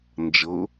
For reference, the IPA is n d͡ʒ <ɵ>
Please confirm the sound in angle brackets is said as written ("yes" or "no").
no